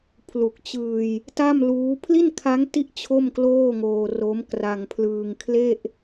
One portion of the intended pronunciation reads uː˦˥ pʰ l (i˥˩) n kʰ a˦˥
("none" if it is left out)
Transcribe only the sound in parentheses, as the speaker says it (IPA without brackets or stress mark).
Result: i˥˩